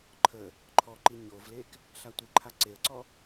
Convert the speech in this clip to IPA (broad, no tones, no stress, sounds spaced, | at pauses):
ǃʰ ə | ǃʰ ɔ ǃ i ɲ o v l e k | ɬ a tʷ ɪ ǃʰ a ǀ e ə̯ ǀ ɔ